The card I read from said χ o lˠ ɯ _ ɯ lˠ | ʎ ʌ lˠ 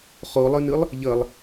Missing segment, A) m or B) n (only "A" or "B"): B